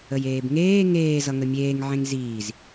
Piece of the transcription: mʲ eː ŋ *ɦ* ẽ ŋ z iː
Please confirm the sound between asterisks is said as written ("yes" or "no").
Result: no